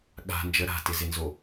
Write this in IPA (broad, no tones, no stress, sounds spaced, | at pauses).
ɠ a̤ n d͡ʒ ə ɾ a̤ t ɪ z ɪ n z o